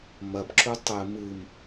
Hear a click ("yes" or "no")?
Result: yes